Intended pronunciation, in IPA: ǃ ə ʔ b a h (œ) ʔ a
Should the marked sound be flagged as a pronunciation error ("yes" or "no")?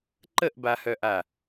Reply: no